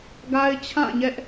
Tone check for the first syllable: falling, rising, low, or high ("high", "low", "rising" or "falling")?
high